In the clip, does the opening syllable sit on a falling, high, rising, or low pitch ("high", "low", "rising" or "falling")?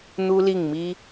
high